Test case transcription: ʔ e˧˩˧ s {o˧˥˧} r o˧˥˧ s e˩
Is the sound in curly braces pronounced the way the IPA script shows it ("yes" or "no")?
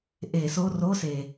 yes